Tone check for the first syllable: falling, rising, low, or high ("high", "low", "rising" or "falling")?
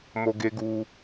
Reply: high